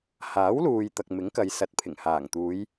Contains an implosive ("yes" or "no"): no